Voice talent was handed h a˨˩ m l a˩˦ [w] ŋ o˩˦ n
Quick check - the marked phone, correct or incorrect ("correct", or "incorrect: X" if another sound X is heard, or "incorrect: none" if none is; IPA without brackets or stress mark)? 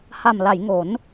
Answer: incorrect: j